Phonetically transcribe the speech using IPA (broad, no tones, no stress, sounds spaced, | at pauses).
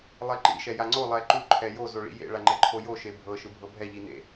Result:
lˠ e ǃ ḭ ʃ ɛ j a ŋ͡ǀ o lˠ ɛ ǃ u ǃʰ ɛ j o z o ɭ ḭ j ḛ ɭ a ŋ͡ǃ ɛ ǃʰ o j o ʃ e bʱ ɤ ʃ ɯ bʱ ɤ bʱ ɛ ʎ i n ḛ